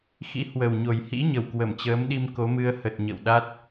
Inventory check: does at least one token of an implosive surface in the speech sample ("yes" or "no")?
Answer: yes